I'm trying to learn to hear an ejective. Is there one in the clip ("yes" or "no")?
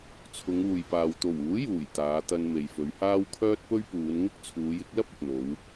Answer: no